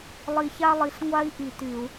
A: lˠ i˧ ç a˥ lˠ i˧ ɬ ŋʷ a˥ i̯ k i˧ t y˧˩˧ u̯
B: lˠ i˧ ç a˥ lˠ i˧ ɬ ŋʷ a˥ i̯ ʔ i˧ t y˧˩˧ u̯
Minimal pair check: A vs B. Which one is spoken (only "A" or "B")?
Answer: B